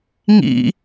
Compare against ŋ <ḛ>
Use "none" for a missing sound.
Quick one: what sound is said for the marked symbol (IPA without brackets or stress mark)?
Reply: ḭ